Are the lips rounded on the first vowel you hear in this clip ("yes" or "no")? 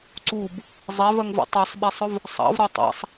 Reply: yes